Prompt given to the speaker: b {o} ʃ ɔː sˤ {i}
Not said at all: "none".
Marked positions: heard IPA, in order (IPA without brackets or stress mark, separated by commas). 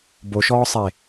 o, e